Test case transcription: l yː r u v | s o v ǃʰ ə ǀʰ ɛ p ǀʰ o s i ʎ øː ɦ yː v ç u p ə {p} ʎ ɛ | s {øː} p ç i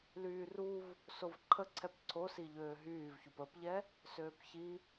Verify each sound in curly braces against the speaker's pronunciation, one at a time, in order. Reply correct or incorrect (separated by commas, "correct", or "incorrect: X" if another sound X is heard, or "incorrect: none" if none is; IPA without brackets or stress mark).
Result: correct, correct